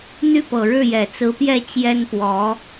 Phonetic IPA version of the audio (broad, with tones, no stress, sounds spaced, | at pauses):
n̪ y˥˩ p ɤ˨˩ ɻ ɻ̩˥˩ j ɛ˨˩ t͡s ɹ̩˧˥ p j ɛ˥˩ t͡ɕ j ɛ˥ n p w ɔ˧˥